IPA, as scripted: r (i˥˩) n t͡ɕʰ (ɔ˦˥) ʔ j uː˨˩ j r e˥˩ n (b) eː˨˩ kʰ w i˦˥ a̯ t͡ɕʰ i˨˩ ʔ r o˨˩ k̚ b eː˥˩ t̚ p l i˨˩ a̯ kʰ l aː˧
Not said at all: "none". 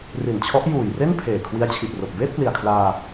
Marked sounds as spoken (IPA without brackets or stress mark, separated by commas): i˨˩, ɔ˦˥, pʰ